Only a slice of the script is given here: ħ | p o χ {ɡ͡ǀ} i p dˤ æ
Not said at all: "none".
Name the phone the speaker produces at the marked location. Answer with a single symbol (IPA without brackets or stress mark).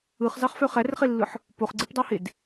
ɡ͡ǀ